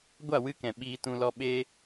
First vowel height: low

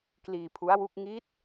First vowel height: high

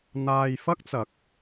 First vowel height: low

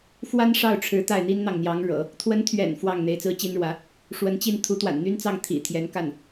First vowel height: low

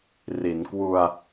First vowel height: high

